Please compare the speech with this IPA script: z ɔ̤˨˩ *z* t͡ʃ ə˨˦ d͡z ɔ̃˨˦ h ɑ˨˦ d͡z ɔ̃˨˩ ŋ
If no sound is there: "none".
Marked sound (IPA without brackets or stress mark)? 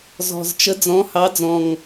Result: z